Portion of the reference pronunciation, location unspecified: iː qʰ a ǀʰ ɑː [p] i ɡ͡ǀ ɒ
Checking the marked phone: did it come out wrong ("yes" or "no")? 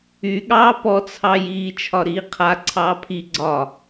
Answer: yes